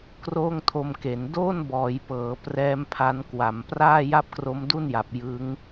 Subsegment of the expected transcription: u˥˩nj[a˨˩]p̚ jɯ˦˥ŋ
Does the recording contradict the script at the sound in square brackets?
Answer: no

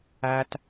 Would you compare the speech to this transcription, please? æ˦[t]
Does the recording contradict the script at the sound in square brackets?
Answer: no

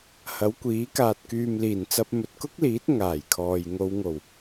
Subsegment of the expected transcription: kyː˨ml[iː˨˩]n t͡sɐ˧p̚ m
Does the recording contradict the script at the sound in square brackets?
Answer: no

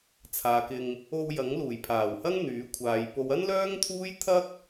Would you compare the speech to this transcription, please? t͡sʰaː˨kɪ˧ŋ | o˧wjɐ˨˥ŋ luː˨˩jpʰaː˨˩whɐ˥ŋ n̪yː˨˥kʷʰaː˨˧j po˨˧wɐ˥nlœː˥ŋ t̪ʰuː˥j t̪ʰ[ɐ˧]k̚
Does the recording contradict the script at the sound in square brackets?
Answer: yes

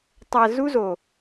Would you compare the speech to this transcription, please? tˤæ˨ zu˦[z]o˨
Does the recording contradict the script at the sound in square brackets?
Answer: no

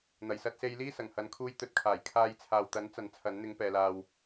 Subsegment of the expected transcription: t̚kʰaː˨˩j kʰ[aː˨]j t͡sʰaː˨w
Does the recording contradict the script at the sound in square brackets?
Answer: yes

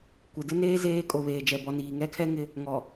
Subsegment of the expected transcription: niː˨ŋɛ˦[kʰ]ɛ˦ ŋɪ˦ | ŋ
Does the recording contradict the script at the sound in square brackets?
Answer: no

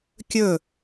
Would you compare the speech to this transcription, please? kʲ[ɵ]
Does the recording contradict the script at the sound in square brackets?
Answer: no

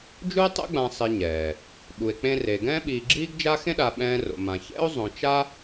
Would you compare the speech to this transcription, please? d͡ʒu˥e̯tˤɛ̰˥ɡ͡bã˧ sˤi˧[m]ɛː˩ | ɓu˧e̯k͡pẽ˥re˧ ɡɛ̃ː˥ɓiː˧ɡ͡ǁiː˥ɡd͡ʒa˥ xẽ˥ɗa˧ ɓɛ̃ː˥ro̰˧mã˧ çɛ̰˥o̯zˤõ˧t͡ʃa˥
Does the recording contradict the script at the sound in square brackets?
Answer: yes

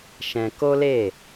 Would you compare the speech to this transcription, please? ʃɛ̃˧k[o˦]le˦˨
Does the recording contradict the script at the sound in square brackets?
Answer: no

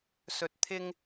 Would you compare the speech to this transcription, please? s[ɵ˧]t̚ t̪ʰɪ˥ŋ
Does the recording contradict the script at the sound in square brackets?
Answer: no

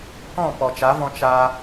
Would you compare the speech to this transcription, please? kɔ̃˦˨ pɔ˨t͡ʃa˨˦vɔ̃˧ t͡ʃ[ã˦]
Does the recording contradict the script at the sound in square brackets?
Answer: yes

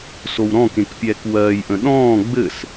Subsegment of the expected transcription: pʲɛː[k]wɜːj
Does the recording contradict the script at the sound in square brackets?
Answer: no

